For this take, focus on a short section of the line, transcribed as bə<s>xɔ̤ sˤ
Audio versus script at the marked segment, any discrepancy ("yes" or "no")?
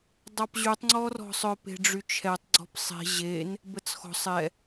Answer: yes